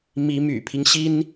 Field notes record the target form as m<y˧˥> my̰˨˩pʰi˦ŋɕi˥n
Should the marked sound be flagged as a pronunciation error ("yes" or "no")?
yes